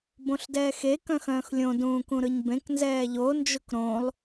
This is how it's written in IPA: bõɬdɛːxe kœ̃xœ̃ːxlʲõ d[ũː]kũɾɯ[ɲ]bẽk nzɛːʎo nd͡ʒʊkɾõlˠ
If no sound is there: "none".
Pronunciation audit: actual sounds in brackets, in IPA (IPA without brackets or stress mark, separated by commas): ũː, ɲ